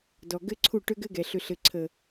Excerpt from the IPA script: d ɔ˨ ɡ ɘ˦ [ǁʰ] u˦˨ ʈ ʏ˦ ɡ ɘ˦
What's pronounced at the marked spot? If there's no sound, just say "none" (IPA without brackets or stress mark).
ǀʰ